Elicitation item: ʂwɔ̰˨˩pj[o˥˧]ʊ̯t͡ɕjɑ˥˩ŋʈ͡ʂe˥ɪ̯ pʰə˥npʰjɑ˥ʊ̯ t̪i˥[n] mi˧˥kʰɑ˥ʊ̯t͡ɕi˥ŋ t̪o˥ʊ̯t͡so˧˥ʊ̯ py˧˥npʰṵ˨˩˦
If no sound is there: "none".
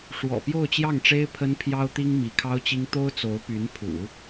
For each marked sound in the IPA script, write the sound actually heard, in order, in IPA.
o˥˧, ŋ

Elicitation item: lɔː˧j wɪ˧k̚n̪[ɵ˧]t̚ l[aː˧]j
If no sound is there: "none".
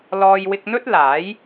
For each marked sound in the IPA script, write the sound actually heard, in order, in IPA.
ɵ˥, aː˨˥

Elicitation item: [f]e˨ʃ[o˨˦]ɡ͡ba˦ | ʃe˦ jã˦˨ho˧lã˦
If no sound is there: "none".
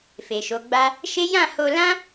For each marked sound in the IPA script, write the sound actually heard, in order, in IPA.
f, o˨˦

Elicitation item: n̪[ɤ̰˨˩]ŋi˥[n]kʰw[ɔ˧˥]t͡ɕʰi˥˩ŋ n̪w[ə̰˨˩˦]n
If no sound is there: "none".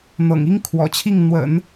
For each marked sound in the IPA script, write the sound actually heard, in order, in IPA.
ɤ̰˨˩, ŋ, ɔ̰˨˩, ə̰˨˩˦

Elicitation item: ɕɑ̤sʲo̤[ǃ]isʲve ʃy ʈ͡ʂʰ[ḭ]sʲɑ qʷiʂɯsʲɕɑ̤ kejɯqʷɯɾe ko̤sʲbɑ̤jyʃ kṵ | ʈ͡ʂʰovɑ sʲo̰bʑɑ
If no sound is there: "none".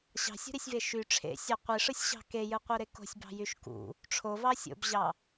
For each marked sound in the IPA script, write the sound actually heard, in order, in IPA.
ɾ, ḛ

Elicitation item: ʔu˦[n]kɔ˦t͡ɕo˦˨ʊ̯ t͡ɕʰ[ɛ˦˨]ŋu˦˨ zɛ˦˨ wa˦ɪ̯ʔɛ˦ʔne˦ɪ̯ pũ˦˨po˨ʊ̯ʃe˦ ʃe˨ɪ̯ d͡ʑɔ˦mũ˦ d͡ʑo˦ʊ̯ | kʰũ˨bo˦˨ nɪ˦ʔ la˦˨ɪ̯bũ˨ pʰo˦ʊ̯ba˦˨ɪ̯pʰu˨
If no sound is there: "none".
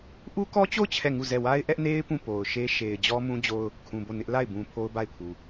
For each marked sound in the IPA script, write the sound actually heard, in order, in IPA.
none, ɛ˦˨

